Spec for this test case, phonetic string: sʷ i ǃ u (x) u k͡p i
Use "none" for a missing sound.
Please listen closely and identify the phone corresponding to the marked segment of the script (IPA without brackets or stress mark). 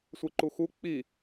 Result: x